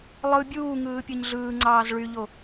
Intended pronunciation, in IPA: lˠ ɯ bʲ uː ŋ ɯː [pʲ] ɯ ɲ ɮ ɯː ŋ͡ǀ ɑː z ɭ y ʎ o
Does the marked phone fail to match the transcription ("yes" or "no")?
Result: no